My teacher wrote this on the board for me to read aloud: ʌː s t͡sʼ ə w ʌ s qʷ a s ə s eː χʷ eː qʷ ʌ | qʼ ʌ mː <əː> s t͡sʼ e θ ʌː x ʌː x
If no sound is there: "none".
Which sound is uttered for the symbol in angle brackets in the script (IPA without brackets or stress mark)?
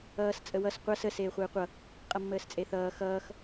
əː